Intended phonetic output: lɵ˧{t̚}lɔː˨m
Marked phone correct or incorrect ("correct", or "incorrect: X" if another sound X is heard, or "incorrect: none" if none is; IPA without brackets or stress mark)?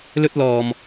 correct